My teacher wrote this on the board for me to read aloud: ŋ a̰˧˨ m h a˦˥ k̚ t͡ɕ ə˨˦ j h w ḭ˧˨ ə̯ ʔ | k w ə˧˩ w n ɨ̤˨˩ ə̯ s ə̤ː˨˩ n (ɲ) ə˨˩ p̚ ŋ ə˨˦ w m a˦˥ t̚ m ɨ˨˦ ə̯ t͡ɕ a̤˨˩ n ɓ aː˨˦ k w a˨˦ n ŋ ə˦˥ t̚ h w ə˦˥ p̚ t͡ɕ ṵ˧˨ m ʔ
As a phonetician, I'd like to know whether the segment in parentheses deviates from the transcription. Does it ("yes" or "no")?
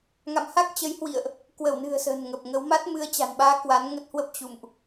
yes